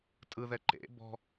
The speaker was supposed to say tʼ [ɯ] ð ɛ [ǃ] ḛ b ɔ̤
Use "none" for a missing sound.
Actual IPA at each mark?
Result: ɯ, ǃ

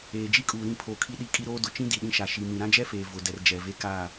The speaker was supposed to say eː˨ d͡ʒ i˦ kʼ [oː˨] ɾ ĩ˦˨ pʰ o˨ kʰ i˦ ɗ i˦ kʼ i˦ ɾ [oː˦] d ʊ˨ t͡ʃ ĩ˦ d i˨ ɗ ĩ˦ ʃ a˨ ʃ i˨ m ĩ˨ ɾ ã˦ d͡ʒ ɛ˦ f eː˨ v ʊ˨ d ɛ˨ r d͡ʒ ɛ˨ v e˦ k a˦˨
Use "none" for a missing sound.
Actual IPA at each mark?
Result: uː˨, oː˦

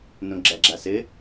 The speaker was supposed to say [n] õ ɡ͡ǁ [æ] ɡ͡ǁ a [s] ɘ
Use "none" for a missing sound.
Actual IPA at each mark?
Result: n, æ, s

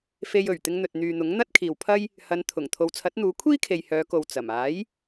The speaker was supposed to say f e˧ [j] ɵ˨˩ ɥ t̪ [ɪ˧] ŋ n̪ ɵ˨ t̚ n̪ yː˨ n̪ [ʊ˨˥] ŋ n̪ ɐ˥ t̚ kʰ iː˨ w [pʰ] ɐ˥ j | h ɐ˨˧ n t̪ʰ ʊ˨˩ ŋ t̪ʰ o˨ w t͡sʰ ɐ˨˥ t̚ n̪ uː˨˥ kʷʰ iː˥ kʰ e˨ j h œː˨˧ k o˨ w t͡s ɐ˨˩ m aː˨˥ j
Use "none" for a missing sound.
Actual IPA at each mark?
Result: j, ɪ˧, ʊ˨˥, pʰ

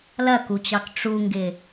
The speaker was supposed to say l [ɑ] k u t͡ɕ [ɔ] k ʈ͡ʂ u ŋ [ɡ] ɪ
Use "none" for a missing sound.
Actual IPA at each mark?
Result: ɐ, ɑ, ɡ

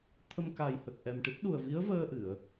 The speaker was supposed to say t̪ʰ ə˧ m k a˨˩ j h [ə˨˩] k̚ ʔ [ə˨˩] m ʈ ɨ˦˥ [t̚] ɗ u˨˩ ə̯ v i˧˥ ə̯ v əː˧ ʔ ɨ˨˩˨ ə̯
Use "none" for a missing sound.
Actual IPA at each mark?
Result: ə˨˩, ɛ˨˩, t̚

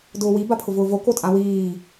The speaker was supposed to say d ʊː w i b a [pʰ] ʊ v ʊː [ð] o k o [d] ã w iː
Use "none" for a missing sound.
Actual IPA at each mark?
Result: pʰ, v, tʼ

